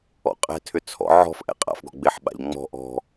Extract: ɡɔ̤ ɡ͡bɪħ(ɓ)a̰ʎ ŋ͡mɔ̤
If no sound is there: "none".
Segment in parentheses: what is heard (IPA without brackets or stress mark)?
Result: ɓ